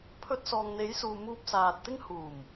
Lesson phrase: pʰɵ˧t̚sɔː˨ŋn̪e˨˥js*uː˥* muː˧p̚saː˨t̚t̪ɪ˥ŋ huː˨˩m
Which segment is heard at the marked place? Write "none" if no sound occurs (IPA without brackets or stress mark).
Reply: uː˨